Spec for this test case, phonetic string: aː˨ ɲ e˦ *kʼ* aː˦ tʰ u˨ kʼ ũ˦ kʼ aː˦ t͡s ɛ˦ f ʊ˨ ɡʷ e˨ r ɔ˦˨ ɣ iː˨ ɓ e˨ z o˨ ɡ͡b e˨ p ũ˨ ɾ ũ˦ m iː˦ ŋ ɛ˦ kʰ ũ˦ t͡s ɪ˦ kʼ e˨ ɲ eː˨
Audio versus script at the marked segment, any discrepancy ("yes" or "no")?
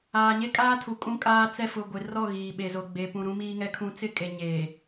no